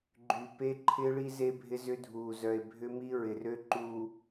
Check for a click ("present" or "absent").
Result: present